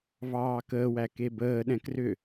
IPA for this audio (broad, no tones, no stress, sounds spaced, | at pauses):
v ɑː k əː w æ k e b əː ɗ ɛ̃ k r ʏ